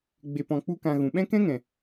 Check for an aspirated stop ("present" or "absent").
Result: absent